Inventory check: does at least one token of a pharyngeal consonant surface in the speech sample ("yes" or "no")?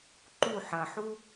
yes